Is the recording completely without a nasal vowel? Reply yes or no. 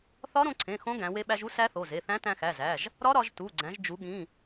no